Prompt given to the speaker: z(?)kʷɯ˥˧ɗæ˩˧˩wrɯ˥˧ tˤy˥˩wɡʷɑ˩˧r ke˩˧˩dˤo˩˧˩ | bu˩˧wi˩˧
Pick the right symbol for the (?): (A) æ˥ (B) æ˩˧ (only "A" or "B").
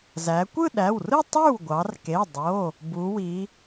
B